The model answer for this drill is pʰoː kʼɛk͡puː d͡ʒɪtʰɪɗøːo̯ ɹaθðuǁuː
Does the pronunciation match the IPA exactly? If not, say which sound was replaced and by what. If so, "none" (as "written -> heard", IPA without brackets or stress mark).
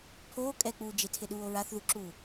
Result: øː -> uː